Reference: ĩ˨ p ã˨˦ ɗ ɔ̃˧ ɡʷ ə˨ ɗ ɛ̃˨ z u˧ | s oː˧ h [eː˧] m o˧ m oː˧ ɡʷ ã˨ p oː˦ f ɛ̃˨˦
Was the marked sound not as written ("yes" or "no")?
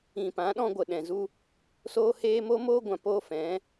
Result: no